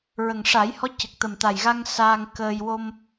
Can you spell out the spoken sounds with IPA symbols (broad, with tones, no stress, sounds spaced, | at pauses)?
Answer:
ɹ ə˨˩ ŋ ʂ a˨˩˦ j h ɔ˧˥ c ə˨˩ k̚ t̪ ə˨˩ m t̪ a˨˩ j ɣ a˧ ŋ s aː˧ ŋ k əː˧ j w o˧ m